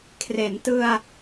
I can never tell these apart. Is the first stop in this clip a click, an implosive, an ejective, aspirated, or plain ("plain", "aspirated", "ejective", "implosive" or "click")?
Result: aspirated